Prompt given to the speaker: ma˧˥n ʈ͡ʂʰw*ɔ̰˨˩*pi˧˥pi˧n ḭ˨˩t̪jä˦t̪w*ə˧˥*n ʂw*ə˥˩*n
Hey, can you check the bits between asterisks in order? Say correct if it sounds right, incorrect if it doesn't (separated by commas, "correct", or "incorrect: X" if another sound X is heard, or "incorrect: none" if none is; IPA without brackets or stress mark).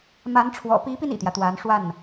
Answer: correct, incorrect: a˧˥, incorrect: a˥˩